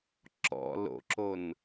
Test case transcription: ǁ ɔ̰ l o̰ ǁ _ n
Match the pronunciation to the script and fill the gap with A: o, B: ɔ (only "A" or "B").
A